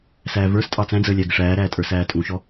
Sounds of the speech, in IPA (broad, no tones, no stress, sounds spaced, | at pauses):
s æː v ə˞ s tʼ ɑ t͡s æ̃ d͡z əː lʲ æ ɡ ɪ ʂ æː ɾ æː tʼ ə˞ s æː tʼ ũ ʃ ɔ